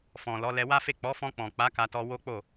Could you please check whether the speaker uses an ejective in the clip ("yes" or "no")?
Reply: no